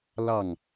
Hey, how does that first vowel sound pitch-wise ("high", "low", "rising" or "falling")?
falling